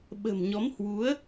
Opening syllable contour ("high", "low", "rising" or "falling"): low